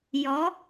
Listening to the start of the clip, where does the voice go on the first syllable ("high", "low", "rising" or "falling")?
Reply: rising